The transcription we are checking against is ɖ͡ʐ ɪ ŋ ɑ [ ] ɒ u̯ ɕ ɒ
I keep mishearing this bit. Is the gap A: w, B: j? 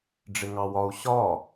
A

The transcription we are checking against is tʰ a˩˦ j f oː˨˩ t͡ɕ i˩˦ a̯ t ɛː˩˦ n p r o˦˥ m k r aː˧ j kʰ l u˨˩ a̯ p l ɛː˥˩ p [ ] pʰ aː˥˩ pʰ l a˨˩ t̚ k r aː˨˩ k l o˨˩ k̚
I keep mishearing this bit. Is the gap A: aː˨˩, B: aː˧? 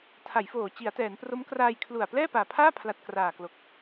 A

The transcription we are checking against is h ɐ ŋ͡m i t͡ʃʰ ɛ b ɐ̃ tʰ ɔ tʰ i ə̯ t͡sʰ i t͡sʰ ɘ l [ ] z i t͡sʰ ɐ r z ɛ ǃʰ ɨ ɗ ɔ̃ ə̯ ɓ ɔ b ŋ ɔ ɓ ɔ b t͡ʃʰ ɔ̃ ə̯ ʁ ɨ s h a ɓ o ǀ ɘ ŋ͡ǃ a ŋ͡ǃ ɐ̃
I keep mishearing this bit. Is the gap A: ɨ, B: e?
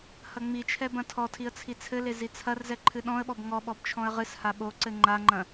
B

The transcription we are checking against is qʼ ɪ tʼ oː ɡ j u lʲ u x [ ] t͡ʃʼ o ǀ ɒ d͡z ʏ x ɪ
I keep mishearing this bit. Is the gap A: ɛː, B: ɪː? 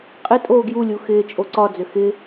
B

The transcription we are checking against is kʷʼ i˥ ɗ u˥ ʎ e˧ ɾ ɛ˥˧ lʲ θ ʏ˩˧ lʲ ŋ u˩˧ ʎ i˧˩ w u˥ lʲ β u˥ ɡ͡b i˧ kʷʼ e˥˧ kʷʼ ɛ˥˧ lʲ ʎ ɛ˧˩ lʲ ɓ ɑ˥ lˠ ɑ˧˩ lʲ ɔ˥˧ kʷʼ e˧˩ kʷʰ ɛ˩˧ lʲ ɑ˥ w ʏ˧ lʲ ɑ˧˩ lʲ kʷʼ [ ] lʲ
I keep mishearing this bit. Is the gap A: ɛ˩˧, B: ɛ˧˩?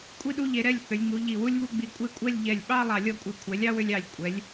A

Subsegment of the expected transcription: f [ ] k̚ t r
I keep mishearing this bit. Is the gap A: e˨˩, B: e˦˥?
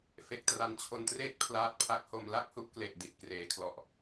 A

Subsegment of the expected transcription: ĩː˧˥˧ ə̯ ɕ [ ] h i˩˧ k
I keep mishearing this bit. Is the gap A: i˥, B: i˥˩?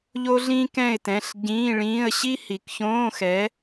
A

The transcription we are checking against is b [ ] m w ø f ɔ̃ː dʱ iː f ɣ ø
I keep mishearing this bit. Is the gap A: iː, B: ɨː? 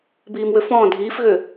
A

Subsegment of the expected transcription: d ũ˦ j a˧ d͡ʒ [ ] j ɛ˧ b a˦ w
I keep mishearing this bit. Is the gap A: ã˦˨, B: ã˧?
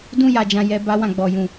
B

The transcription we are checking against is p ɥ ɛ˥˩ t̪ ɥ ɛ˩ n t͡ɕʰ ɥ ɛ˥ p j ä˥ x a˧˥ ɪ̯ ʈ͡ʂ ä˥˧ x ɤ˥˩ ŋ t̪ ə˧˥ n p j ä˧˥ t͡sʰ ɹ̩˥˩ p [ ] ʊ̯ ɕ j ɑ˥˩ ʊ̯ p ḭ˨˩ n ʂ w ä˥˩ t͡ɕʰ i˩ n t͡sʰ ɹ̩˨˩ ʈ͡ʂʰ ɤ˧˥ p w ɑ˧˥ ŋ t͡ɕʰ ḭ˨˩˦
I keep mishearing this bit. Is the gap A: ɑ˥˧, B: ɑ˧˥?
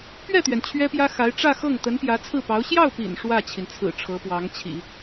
B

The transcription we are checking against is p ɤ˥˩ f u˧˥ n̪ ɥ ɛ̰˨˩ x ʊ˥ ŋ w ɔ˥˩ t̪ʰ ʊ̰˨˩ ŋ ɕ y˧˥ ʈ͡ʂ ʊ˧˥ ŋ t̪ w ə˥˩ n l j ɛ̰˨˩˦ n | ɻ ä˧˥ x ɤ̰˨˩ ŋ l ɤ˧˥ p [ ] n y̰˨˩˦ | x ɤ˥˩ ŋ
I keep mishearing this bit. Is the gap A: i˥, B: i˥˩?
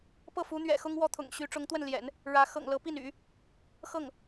B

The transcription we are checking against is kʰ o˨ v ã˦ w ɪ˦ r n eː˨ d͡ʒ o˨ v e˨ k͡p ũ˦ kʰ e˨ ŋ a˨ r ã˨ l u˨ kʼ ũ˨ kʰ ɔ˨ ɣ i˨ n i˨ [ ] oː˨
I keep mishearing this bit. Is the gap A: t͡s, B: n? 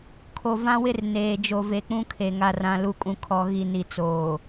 A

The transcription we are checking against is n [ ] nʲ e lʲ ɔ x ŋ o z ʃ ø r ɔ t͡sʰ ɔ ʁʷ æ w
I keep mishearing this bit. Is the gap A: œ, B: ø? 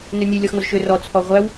B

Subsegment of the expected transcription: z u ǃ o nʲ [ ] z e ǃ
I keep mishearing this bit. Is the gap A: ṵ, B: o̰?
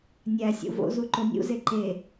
A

